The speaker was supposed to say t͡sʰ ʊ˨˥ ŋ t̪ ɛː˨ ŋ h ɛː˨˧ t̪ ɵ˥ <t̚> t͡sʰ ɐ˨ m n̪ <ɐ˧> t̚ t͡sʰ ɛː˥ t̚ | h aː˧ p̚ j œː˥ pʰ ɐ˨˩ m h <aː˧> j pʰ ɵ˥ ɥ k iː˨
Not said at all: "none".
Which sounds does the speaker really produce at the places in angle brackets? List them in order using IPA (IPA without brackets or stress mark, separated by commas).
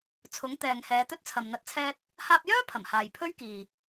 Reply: t̚, ɐ˧, aː˨